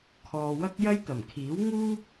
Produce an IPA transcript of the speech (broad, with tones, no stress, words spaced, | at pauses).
kʰɔː˨wɐ˥k̚jɐ˥jt̪ɐ˨˩m kʰiː˨˥wŋuː˥p̚